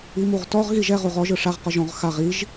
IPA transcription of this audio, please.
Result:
i m u ʁ t ɔ ʁ ɣ i ʒ ɛ ʁ u ʁ ɔ ʒ ɯ ʂ a ʁ q ɔ ʒ ɔ̃ ʁ x a ʁ i ʒ

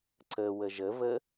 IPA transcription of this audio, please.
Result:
ǀ ə w ə ʒ ə v ə

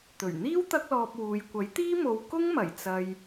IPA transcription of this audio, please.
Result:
t̪ ɵ˨˩ ɥ n̪ iː˥ w t̪ ɐ˥ k̚ l ɔː˧ p̚ w uː˨ j kʷ ɐ˨˥ j t̪ iː˥ m o˧ w k ʊ˥ ŋ m ɐ˨˩ j t͡s ɐ˨ j

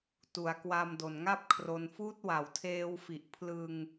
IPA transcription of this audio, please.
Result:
t u˩˦ a̯ k w a˧ m d o˨˩ n ŋ a˥˩ p̚ kʰ r o˧ n f uː˦˥ t̚ w a˩˦ w tʰ eː˧ w f i˨˩ ʔ pʰ l ɯ˧ ŋ

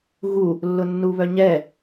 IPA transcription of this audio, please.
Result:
ɣ u | lː ʊ nː u β œ ɲ ɛ

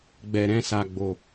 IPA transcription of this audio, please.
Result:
ɡ͡b ɛ˨ ɾ ɛ̃˧ s a˨ ɡ͡b o˨

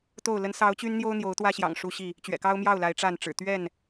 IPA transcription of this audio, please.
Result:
t̪ o˥˨ ʊ̯ l ə˨˦ n s ɑ˨˦ ʊ̯ t͡ɕ y˦ n n̪ j o˦ ʊ̯ n̪ j o˨˦ ʊ̯ t̪ w ä˦ ɕ j ɑ̰˨˩ ŋ ʂ u˦ ɕ i˥˨ | t͡ɕ ɥ ɛ̰˨˩ k ɑ˦ ʊ̯ m j ɑ˥˨ ʊ̯ l a˨˦ ɪ̯ ʈ͡ʂ a˥˨ n ʈ͡ʂ ɻ̩˨˩ t̪ ɥ ɛ˥˨ n

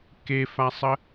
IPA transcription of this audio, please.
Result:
k e f a sˤ ə

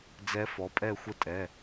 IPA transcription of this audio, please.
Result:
d͡z ɛ˧˥ f ɔ˩˥ pʼ ɛ˦˨ xʷ ə˦˨ tʼ ɛ˩˧˩

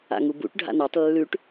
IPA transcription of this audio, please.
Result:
a̰ ŋ u b ṵ ʈ ɖʱ a̰ n a tˤ lː ʉ ʈ

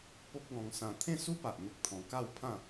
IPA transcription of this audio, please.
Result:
p o˦ p̚ ɡ ɔ̃˧ ŋ s ã˧ t̪ʰ ẽ˥˧ s u˦ p a˨ ʔ n̪ ə˦ k̚ t̪ʰ ɔ̃˧ k a˥˧ w pʰ ã˥˧

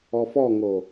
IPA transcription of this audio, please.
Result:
ɔ f ɔ ŋ o

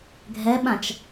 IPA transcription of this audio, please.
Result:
ɡʱ ɛ ɓ ã t͡ʃ

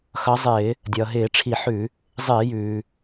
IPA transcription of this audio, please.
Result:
x ʌ˨˦ zˤ ɪː˧˩˧ | dʲ ʌː˩ ɦ ɪː˧˩˧ ʈ͡ʂʰ i˧˩˧ ħ ʉ˧˩˧ | zˤ ɪː˧˩˧ j ʉː˩

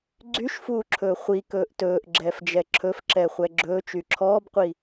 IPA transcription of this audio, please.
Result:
ɡ͡ǀ y ʃ f uː ǁʰ ɵː χʷ i k ɵː ʔ t ɵː ʔ ɡ͡ǁ ɛː f d͡ʒ ɛ ǁʰ ɵ f ǁ ɛ χʷ ɛ ɡ͡ǁ ɵː t͡ʃ y ǁʰ ɔː b qʷ i

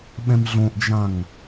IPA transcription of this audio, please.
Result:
ɓ ɛ̃ m ɮ õ ʔ d͡ʒ ã ŋ

